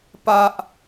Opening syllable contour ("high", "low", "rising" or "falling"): high